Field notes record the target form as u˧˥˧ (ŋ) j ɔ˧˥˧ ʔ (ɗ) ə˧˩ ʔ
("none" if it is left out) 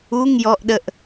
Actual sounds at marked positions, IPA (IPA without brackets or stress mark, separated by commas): ŋ, ɗ